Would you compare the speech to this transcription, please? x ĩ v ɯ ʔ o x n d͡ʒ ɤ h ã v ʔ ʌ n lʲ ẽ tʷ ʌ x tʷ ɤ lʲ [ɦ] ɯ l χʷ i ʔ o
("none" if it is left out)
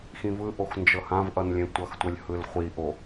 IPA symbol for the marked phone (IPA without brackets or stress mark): h